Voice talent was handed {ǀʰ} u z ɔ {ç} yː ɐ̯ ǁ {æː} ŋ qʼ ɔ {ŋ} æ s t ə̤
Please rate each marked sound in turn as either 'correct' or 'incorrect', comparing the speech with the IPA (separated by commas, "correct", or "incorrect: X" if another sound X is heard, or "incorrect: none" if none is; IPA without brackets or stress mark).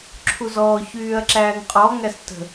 incorrect: ǁʰ, correct, correct, correct